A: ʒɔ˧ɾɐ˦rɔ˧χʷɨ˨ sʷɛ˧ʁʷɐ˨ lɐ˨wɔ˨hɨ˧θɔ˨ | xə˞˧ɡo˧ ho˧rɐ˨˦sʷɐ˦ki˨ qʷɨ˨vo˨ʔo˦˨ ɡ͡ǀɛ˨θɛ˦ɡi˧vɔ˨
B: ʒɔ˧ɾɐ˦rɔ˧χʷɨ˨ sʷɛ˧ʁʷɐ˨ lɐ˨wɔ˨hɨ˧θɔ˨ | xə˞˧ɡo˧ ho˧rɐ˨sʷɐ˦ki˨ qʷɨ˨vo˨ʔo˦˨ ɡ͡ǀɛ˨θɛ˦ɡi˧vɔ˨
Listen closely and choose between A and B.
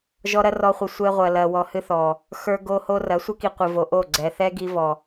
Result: A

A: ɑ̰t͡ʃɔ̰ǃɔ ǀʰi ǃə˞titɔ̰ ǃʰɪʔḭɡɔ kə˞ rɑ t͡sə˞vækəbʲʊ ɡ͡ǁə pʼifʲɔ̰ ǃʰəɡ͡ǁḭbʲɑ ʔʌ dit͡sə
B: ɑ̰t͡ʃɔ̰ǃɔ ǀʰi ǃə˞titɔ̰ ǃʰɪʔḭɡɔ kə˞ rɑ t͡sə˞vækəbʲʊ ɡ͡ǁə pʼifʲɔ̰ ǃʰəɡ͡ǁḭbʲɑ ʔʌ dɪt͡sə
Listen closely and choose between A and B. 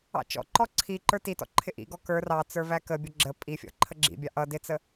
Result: B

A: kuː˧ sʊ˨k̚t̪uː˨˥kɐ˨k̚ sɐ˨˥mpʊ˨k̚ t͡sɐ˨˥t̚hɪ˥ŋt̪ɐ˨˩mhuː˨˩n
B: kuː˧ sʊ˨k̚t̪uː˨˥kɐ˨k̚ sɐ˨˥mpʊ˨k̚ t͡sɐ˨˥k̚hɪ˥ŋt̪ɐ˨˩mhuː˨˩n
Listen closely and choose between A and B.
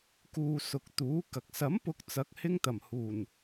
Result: B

